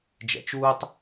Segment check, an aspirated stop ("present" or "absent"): absent